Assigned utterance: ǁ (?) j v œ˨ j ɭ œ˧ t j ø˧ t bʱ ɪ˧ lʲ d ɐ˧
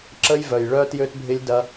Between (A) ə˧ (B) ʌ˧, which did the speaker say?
A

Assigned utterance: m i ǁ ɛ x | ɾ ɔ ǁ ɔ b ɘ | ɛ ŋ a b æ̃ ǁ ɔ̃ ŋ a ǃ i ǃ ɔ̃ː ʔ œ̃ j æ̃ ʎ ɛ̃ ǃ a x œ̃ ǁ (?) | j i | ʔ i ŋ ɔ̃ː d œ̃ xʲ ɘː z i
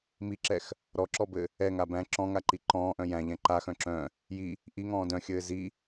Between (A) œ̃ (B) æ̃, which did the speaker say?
A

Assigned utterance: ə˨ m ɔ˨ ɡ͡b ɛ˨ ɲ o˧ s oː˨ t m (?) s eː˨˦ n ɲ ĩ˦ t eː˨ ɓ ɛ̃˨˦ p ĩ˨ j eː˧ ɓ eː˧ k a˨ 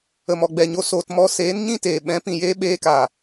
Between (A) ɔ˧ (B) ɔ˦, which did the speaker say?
A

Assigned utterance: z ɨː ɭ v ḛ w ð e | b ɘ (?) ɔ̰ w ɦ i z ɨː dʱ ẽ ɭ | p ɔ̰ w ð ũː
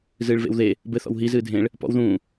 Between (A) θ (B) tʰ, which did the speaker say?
A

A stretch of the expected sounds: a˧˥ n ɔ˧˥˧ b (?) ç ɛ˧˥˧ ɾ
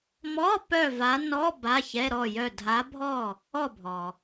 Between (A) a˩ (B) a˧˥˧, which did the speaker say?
B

